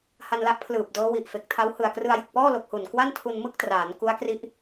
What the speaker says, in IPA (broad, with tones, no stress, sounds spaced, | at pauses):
h a˧ n l a˦˥ ʔ pʰ l ɯː˨˩ p̚ d ɤː˦˥ w i˨˩ ʔ f e˨˩ k̚ tʰ a˦˥ w h ɯ˨˩ a̯ k r ɯ˧ a̯ j ɯ˨˩ k̚ p ɔː˥˩ l o˨˩ k̚ h u˨˩ n k w a˥˩ n tʰ u˧ n m ɯ˥˩ k̚ t r aː˩˦ n k u˦˥ a̯ k r i˦˥ ʔ